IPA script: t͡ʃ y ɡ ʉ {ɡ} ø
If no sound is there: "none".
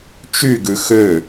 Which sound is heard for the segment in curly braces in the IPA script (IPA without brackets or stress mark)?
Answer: x